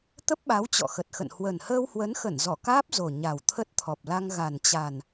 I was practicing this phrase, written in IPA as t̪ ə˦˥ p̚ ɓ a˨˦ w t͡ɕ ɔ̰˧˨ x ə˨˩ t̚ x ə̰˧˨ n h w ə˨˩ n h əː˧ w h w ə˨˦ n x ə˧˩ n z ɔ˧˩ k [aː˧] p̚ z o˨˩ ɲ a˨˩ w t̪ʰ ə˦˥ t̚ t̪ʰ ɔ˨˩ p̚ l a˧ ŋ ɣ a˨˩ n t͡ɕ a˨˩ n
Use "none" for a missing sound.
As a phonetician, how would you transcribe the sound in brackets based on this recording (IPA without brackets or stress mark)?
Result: aː˦˥